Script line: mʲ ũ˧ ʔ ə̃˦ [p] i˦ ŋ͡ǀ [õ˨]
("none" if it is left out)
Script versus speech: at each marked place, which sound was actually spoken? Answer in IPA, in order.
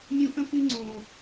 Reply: p, õ˨

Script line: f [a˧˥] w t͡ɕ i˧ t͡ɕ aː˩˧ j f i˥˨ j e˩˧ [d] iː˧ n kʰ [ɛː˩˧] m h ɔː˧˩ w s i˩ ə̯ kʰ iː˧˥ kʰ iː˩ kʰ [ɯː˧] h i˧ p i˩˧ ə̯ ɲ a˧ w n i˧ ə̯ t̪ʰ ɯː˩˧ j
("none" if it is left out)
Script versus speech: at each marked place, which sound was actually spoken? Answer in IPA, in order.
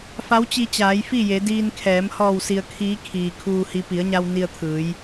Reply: a˧˥, d, ɛː˩˧, uː˧

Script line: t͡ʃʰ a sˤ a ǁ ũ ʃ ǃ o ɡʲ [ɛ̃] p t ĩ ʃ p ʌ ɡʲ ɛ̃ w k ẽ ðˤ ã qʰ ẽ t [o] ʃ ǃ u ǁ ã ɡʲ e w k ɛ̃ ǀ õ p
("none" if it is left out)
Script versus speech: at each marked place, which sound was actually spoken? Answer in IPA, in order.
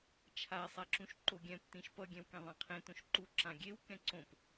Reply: ɛ̃, õ

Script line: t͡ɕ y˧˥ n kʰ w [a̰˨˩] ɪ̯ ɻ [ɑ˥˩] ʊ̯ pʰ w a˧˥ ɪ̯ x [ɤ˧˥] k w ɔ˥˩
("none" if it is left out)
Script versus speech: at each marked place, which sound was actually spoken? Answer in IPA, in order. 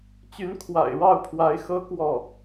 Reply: a̰˨˩, ɑ˥˩, ɤ˥

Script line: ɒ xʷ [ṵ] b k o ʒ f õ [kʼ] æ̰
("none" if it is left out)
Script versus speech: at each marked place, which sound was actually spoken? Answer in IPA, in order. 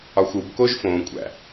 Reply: u, kʷʼ

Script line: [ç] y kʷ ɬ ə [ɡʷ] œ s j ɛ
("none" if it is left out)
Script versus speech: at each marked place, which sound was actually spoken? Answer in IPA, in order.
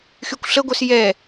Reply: x, ɡʷ

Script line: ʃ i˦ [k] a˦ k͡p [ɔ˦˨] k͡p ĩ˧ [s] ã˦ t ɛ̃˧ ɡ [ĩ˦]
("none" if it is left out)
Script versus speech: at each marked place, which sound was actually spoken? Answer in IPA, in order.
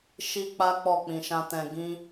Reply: k͡p, ɔ˦˨, ʃ, ĩ˦

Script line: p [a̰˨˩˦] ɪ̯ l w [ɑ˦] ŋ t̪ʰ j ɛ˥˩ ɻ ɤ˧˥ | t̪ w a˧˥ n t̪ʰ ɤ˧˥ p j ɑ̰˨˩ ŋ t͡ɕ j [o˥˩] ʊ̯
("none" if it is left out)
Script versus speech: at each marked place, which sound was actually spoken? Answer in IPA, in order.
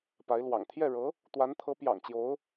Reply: a˧˥, ɑ̰˨˩, o˧˥

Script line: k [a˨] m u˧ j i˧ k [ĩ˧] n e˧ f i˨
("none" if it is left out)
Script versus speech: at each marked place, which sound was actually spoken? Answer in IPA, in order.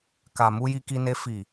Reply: a˨, i˧

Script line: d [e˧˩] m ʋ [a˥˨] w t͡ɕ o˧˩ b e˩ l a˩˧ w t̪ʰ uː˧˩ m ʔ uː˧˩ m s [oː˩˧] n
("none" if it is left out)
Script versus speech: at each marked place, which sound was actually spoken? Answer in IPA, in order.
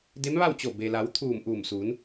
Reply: e˧˥, a˥˨, uː˩˧

